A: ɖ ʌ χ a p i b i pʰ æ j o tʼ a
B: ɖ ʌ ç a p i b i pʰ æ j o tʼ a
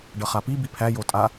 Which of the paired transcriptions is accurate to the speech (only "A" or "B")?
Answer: A